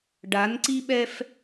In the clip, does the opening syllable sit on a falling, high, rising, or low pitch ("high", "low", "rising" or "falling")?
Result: rising